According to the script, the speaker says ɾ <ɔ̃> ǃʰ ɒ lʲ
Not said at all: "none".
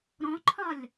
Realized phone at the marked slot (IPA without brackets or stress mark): ɔ̃